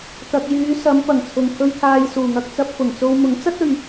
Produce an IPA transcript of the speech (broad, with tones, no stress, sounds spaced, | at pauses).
t̪ ɐ˨ k̚ j yː˨˧ s ɐ˨˧ m p ɐ˨˩ ŋ t͡sʰ ʊ˨˩ ŋ kʰ ɵ˧ ɥ t̪ʰ aː˨ j s uː˨˩ ŋ ɐ˧ k̚ t͡s ɐ˧ p̚ f ʊ˨˩ ŋ t͡s o˧ w m ʊ˨˥ ŋ t͡s ɐ˥ t̚ ɵ˨ ɥ